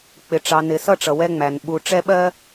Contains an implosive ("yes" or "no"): yes